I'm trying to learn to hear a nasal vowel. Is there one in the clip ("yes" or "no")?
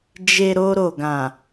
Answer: yes